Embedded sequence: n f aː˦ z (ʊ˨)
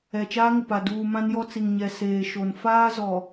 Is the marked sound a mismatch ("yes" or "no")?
yes